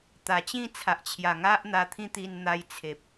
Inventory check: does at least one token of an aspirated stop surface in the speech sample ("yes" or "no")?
yes